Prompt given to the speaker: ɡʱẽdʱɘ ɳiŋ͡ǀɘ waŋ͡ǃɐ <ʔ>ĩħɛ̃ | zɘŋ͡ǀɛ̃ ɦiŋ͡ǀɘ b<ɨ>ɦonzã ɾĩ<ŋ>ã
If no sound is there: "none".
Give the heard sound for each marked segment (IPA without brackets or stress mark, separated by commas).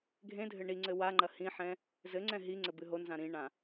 h, ɨ, ɳ